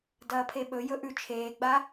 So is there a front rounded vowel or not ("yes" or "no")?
no